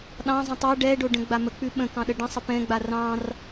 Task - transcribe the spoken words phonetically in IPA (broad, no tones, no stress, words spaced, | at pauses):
ɗɑ̃zˤə̃ tˤɑ ɖɛɖo ɖə̃ɡ͡bamək͡pʉ ɓə̃ kɑ̃ɗəɖə̃sˤə pɛ̃ɡ͡ba rɑ̃r